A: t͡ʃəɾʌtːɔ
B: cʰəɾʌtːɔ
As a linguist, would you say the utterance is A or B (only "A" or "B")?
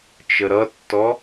A